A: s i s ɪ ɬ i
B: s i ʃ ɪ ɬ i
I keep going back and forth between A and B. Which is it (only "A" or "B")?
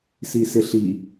A